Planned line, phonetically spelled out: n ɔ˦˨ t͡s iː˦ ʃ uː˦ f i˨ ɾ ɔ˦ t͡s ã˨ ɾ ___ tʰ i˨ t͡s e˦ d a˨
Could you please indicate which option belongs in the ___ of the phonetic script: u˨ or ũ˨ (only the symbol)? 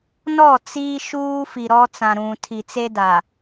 ũ˨